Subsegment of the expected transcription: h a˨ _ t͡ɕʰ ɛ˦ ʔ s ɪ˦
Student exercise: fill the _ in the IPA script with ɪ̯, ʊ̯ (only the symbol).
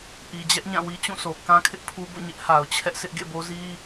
ʊ̯